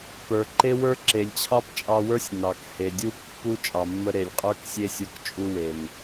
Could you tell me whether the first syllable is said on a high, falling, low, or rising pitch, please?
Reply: low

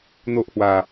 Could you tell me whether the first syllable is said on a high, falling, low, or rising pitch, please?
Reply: high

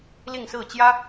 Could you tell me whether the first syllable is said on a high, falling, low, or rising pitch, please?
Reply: falling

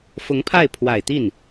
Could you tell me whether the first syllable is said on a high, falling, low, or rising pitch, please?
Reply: rising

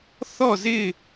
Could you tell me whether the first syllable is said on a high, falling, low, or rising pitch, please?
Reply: falling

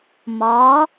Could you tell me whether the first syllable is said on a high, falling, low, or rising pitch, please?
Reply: rising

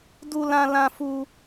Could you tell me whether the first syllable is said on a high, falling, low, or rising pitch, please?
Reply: high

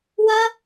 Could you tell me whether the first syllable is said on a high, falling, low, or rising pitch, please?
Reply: high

